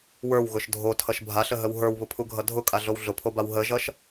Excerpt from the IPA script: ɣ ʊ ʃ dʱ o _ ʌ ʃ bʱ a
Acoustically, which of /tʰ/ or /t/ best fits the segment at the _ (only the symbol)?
tʰ